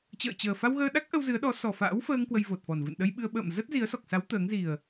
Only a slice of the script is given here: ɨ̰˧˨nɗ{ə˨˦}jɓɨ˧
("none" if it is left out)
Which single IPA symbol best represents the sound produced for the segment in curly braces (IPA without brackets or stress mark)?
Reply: ə˧